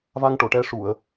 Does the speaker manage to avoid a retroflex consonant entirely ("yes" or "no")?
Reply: no